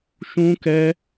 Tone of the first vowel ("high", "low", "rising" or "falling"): high